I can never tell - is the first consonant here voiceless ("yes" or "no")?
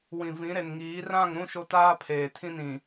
no